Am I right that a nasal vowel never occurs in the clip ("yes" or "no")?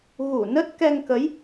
yes